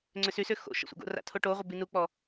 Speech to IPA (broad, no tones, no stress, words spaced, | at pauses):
ŋ͡ǀʏsysʏ xo̰ ʃə̰sʷa̰ɡo̰ra̰ tʰoʈoʁʷɪ binuk͡pɔ